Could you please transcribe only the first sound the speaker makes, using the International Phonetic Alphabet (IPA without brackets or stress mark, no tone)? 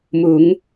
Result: m